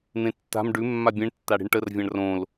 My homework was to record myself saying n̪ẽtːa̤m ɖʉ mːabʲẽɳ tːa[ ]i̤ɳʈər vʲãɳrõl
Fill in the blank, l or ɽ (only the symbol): ɽ